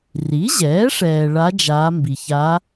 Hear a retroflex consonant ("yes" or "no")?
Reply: yes